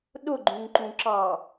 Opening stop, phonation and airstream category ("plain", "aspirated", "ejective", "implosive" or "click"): implosive